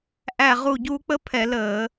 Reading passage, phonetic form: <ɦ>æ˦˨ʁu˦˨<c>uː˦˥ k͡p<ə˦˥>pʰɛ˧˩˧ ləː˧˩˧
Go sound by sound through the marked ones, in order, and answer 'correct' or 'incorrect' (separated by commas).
incorrect, incorrect, correct